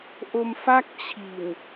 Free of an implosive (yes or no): yes